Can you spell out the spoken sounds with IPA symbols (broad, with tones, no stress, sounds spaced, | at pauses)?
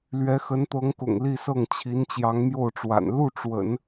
l ɥ ɛ˧˥ x ə˧˥ n t̪ ɤ˧˥ ŋ k ʊ̰˨˩ ŋ l i˥˧ s ɤ˥˩ ŋ t͡ɕʰ i˧˥ n t͡ɕ j ɑ˧˥ ŋ m j o˥˩ ʊ̯ ʈ͡ʂ w a̰˨˩ n l u˥˩ ʈ͡ʂ w ə̰˨˩˦ n